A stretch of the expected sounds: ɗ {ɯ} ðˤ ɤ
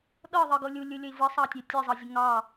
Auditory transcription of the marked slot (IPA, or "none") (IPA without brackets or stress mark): ɤ